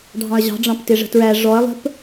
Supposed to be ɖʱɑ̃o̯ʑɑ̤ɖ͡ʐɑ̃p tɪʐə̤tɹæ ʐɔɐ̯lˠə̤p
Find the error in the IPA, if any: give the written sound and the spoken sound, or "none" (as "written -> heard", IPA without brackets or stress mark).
o̯ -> ɐ̯